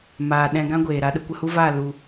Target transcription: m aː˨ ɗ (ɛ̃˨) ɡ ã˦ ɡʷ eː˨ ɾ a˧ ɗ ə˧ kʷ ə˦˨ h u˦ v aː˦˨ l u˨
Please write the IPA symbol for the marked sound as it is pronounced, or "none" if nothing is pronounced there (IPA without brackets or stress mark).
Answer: ɛ̃˧